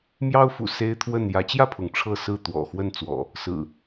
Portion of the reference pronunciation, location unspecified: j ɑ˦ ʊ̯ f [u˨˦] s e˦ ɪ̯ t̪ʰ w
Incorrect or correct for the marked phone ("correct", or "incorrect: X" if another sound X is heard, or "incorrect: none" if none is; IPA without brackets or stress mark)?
incorrect: ṵ˨˩